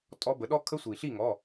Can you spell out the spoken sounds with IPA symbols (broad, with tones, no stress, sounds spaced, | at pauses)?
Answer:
tʼ ɔ˦˥ b ə˩˥ ɗ ɔ˦˥ kʰ ə˦˥ sʷ i˩ ɬ i˥˨ ŋ ɔ˩˧˩